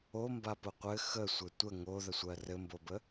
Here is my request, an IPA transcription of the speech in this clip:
o m b a p ʊ qʷ ɘ x ə sʷ ɘ tʷ ə ŋ o ð ə sʷ ɜ r ɘ m b o b ə

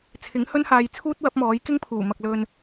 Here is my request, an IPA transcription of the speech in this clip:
t͡sʰ ɪ˨˥ ŋ h ɵ˥ n h aː˧ j t͡sʰ uː˥ t̚ w ɐ˨˥ p̚ m ɔː˨˥ j k ɪ˥ ŋ pʰ uː˨˩ m ɐ˨ k̚ l ɵ˨ n

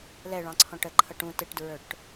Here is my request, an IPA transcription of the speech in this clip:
l ɛ ɭ ɑ̃ ǀʰ ɔ̃ ʈ ə ǃʰ ʌ ʈ ũ t ɪ ʈ d ɹ ə˞ ʈ

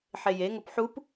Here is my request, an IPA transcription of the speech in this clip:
ħ e j e ŋ o p ħ u p

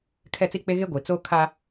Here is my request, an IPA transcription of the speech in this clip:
kʰ ɛ˦˨ t͡s i˦ k͡p e˦ ɣ e˦ ɡʷ i˨ t͡s oː˦ kʰ a˦

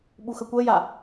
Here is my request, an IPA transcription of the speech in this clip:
ɓ u x ə kʷ ə j a

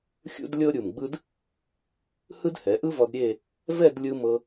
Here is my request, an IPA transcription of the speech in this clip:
xʲ ṵ˥ d lʲ ɤ˥ ɾʲ u˧˩ m ɡ͡b ɯ˥ d | h ɯ˥ d h ɛ˩˧ ʔ ɯ˥ v ɔ˧ d ɾʲ e˥˧ | v ɛ˥˧ d lʲ ɯ˧ m ɤ˧

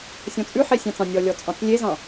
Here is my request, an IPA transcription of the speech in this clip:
sʲ ɔ̃ t͡sʼ ʉ ħ e sʲ ɑ̃ t͡s ɑ̃ nʲ ɔ lʲ ɔ t͡sʼ ɑ̃ t͡s lʲ e z ɑ̃

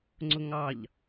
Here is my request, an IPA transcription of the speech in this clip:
ŋ͡ǀ ʊ ŋ ɑ ʎ

